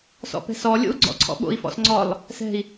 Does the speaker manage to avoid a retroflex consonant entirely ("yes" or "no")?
yes